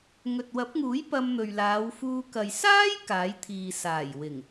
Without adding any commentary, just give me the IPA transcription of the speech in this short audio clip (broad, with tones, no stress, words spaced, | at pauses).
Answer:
ŋɵ˨t̚wɐ˨˥p̚ŋuː˨˥j pɐ˧mn̪ɵ˨ɥlaː˨˧wfuː˧ kɐ˨jsaː˥j kaː˨˥jt̪ʰiː˨ saː˨˩jwɪ˨˩ŋ